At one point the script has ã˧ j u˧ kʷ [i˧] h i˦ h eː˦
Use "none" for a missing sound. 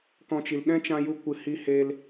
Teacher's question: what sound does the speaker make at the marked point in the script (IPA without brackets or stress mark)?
ɨ˧